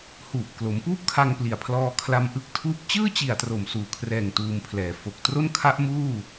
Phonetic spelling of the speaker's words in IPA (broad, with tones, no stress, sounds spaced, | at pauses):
h uː˨˩ p̚ k l o˩˦ m p uː˥˩ p̚ kʰ a˧ ŋ p l i˨˩ a̯ pʰ l ɔː˧ kʰ l a˧ m ʔ ɯ˦˥ k̚ tʰ uː˦˥ p̚ t͡ɕ ɯː˥˩ t͡ɕ i˨˩ a̯ t r o˨˩ m s uː˨˩ kʰ r ɛː˨˩ ŋ t uː˧ m pʰ l ɛː˨˩ f o˨˩ k̚ t r o˥˩ n kʰ a˦˥ ʔ m uː˥˩